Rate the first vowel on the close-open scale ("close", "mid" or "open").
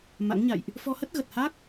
open